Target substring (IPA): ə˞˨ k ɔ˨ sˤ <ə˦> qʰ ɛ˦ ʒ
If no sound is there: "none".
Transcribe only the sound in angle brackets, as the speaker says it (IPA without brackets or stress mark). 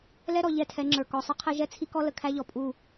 ə˦